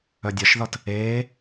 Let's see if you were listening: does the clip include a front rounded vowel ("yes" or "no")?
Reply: yes